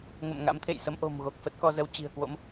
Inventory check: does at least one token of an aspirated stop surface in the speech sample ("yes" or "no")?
yes